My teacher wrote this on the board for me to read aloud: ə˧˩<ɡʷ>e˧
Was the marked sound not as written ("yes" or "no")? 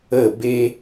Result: yes